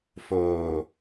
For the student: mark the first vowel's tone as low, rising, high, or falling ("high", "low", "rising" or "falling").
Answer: low